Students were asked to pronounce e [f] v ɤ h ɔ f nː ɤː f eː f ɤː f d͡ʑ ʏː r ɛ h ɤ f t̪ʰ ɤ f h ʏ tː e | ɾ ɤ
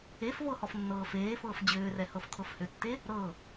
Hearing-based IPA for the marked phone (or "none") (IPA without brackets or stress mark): f